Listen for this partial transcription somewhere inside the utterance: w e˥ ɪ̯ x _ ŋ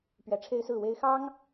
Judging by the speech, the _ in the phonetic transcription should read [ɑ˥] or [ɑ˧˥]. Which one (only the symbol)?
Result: ɑ˥